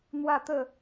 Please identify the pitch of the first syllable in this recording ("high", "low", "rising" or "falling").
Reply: falling